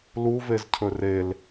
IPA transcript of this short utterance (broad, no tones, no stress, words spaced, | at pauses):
luvezcʰɵ rel